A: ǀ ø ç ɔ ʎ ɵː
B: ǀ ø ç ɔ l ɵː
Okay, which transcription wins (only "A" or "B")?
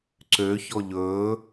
A